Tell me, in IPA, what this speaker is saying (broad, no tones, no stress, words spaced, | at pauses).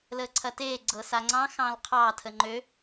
ləːǀʰɐteː ɡ͡ǀɤsaŋ͡ǀɑ̃ xɑ̃lqʰɑ tʰəŋ͡ǃø